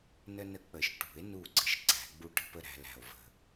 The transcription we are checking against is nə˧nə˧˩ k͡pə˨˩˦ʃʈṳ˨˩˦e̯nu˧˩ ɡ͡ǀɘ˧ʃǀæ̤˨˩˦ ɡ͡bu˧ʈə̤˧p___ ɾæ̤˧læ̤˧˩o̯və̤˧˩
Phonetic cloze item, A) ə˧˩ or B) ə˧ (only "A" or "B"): B